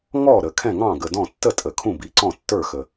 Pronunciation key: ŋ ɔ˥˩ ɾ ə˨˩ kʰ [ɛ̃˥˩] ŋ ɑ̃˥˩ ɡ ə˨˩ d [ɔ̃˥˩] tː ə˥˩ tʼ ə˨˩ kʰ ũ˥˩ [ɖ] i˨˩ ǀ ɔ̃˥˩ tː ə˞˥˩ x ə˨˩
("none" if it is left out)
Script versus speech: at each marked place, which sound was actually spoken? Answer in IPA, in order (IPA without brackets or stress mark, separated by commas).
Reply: ɛ̃˥˩, ɔ̃˥˩, b